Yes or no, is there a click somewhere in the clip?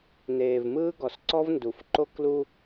yes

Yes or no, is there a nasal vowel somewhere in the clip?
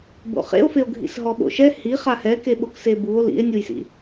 no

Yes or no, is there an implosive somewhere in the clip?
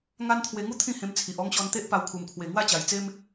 no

